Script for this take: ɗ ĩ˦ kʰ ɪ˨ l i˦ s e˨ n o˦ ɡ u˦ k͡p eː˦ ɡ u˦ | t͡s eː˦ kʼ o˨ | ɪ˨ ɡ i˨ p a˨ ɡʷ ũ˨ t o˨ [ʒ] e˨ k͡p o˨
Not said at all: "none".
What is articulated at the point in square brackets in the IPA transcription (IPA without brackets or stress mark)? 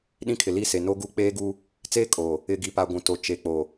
t͡ʃ